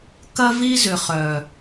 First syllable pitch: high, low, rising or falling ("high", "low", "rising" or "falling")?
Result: high